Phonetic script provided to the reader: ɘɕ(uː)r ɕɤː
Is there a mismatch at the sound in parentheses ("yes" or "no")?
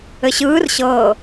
yes